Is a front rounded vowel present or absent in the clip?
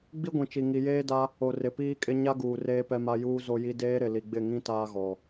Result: absent